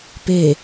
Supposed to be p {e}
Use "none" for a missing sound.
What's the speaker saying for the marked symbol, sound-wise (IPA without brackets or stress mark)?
e